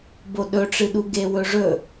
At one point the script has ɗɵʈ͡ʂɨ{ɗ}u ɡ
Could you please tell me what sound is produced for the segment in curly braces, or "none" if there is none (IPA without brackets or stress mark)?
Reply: ɗ